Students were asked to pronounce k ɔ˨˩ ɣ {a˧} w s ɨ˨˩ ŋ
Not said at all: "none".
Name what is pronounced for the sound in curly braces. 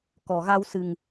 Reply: a˧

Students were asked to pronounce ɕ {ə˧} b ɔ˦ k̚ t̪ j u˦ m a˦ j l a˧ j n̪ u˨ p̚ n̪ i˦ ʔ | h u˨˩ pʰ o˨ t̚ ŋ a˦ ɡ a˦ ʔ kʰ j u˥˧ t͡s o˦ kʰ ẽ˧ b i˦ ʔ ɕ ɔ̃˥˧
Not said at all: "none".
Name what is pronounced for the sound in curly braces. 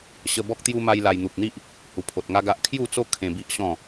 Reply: ə˧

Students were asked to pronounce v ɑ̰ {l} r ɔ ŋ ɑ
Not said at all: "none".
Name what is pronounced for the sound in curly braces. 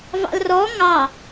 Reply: l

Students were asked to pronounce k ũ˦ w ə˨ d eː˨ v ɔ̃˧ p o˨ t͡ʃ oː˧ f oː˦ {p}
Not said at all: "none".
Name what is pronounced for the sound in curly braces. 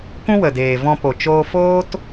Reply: t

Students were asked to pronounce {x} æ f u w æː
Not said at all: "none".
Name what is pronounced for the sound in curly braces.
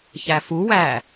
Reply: ç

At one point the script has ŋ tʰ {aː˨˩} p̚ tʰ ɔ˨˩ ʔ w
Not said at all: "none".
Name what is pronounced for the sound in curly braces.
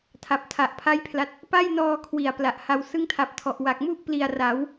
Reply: a˨˩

